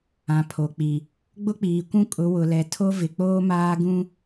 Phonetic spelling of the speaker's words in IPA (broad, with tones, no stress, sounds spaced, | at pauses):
ã˨ pʰ o˨ k͡p i˨ | ɡ͡b ʊ˦ k͡p iː˨ kʷ ũ˦ kʼ ʊ˨˦ w ʊ˨ l ɛ˨ tʰ o˦ v ɪ˨ k͡p oː˦ m aː˦ ɡ ũ˦